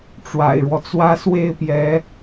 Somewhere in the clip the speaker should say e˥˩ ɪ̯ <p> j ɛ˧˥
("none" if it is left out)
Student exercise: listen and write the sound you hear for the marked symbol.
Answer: p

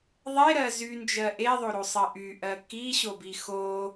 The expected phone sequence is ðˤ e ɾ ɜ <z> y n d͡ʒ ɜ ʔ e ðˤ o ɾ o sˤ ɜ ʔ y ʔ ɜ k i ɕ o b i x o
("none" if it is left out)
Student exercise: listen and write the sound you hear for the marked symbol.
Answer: z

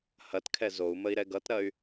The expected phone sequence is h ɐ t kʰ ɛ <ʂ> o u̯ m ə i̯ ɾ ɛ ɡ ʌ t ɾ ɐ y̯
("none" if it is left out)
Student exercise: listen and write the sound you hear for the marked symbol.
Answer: z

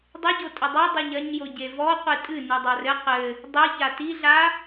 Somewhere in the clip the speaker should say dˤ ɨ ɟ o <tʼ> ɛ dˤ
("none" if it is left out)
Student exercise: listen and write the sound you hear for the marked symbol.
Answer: tʼ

